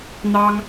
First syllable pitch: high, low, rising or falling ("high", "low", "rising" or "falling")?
high